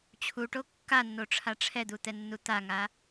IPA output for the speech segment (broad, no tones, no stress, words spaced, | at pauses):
t͡ɕʰuʈo kːanːoʈ͡ʂʰa ʈ͡ʂʰɛd̪ut̪ɛnːu t̪aŋa